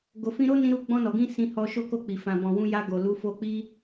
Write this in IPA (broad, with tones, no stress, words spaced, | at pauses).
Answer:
ɡo˨fĩ˧ɾo˦ nĩ˦ɾu˦ ɡ͡bɔ̃˧nɔ˨ɡĩ˧ sĩ˧hɔ˧ʃo˦ko˦˨ k͡pi˨ fã˨bɔ̃˨wũ˧ ja˧ɡo˨ lu˨˦fo˧ k͡pi˦